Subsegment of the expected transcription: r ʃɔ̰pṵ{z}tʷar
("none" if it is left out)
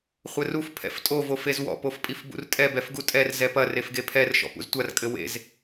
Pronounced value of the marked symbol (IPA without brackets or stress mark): z